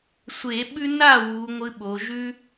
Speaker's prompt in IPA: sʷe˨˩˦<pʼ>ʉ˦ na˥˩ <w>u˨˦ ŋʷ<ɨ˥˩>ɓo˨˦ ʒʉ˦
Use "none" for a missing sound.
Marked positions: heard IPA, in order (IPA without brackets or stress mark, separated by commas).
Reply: ɓ, w, ɨ˦